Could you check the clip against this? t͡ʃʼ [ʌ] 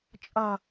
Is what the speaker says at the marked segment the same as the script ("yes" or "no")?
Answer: yes